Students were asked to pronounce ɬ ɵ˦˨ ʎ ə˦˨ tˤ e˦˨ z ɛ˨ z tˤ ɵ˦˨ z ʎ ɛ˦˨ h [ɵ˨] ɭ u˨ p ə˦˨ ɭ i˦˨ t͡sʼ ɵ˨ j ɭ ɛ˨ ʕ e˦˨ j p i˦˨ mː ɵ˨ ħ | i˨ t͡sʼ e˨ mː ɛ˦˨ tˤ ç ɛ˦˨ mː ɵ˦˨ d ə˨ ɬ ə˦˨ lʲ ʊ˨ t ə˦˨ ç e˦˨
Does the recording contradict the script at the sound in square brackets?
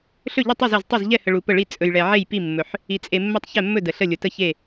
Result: yes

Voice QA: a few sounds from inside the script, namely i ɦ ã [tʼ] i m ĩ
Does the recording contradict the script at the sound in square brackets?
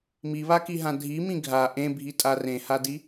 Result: yes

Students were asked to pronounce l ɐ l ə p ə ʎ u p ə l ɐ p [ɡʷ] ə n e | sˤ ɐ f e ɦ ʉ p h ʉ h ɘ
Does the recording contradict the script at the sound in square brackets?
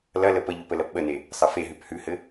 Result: yes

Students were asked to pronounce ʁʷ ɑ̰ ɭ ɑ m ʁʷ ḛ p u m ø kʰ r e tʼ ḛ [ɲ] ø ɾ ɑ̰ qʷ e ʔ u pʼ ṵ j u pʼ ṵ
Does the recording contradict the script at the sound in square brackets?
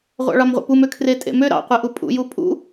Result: yes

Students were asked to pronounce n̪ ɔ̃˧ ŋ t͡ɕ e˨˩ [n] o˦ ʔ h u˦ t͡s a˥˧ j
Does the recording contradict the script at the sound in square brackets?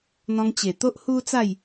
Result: yes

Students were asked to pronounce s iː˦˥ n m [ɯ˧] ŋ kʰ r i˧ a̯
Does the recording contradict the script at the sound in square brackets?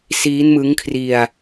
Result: yes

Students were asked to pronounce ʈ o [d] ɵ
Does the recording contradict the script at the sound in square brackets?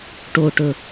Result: yes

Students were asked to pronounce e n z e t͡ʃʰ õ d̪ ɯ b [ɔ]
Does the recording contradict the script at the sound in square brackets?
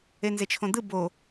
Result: yes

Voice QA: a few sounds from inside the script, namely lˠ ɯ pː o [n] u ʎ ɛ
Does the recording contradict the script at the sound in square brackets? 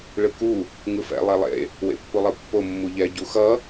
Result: yes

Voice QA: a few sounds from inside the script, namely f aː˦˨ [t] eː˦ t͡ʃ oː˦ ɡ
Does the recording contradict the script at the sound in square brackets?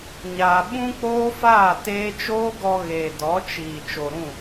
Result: no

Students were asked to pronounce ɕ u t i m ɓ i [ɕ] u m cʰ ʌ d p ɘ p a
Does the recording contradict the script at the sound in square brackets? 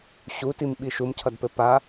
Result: yes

